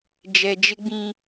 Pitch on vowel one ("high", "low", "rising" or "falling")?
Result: low